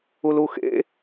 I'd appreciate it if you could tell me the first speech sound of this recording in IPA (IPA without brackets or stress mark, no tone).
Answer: u